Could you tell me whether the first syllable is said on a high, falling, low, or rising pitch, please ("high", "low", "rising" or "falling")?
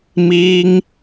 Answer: high